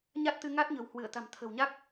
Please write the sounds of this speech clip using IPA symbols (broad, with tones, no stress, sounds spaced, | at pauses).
ɲ a˦˥ t̚ t̪ ɨ˧ ŋ a˦˥ t̚ ɲ ə̤˨˩ w h w ɨ˧˩ ə̯ t̪ a̤˨˩ m t̪ʰ ə̤˨˩ w ɲ a˦˥ k̚